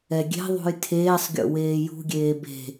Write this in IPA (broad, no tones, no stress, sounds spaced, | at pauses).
ɛ ɡʲ e̤ ðˤ ṳ j tʰ eː sˤ ɡʲ o̰ w eː j ṳ ɡʲ eː b e̤